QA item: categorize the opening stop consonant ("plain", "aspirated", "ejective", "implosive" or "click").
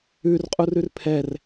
ejective